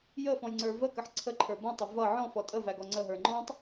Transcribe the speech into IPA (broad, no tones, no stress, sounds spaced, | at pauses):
j ə f ɔ̃ j ŋ͡ǀ ə˞ v ə k ə ħ ǀʰ ə ǃʰ ə˞ b ɔ̃ tˤ ʌ v ʌ ʕ ɔ̃ f ɔ tʼ ə v æ ɡ ɔ ŋ͡ǀ ə ɦ ə˞ ŋ͡ǃ ɔ̃ tˤ